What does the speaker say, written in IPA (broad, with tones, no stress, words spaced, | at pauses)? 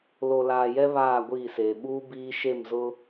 lo˨laː˨jɛ˦ βaː˦˨ɡʷiː˦˨seː˨ ɓuː˦biː˦ ʃe˦˨mzʊ˦